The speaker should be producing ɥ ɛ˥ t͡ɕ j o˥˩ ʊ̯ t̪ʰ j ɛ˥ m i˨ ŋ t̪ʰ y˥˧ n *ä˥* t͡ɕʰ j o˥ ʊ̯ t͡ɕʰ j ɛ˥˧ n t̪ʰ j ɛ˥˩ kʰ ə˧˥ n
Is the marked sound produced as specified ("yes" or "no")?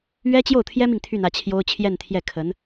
no